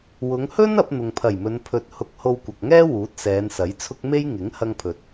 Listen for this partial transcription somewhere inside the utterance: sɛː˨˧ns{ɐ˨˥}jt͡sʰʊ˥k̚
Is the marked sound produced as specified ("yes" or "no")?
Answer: yes